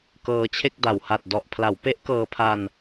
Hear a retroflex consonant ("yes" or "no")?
no